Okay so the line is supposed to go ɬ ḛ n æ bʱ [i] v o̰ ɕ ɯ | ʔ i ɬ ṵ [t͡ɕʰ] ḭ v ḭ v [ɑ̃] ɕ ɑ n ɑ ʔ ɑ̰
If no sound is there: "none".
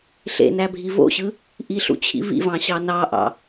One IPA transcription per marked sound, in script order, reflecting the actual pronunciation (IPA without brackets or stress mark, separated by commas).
i, t͡ɕʰ, ɑ̃